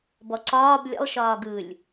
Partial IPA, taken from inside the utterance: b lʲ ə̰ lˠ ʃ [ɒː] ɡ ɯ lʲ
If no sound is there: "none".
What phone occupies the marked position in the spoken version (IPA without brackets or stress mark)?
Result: ɒː